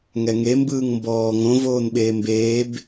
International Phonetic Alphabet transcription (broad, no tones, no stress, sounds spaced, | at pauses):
ŋ ɛ ŋ e m b ɯː ŋ m b ɔː ŋ õ v oː n ɓ eː m b eː b